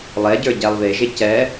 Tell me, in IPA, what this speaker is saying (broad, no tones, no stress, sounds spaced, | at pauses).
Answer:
lˠ ɛ ɟ ə˞ ɟ æ lˠ β e ʒ e c ɛ